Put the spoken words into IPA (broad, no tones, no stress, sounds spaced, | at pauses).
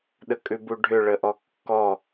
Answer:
ɗ ə kʼ ʉ b u ɖʱ ʏ ɭ ə ʔ ɔ kː ɔ